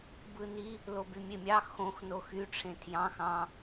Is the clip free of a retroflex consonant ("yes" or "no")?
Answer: no